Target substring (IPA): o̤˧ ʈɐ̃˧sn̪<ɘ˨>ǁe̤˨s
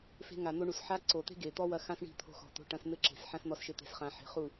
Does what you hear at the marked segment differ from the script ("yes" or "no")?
yes